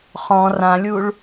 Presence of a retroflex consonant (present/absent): present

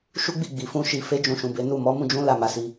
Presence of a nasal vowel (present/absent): present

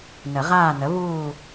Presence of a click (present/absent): absent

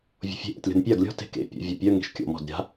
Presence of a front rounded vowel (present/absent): present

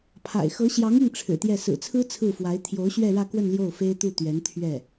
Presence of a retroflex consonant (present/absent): present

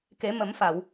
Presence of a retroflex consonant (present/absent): absent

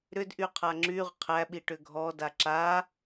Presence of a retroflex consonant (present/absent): present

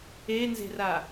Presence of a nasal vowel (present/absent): absent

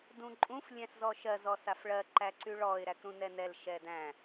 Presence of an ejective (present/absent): present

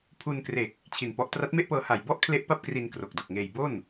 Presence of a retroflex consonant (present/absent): absent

